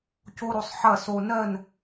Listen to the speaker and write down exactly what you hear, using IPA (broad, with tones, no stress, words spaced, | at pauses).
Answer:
co˦ɾo˧sˤ ħɐ˦˨so˧ nɜ˦˨n